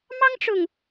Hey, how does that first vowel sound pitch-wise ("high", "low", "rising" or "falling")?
high